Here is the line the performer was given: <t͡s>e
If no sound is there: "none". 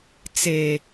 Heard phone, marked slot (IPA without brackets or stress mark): t͡s